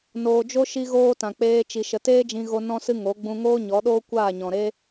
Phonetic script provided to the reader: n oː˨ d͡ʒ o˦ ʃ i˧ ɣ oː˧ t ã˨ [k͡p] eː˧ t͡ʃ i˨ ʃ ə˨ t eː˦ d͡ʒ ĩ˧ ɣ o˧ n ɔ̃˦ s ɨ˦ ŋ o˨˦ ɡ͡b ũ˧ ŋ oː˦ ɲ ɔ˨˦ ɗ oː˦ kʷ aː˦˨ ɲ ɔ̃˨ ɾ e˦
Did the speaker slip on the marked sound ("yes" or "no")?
no